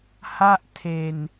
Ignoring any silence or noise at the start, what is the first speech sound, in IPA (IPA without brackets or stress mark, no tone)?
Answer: h